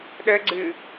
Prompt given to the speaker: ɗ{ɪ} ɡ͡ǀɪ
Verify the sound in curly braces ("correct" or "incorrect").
incorrect